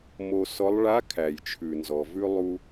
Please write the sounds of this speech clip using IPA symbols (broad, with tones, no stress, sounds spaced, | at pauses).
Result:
m o˧ s ɔ˧˥ lˠ ɭ a˧˥ kʰ æ˩ j t͡ʃʰ ʉ˩ n z ɔ˩ v ʉ˧ lˠ u˧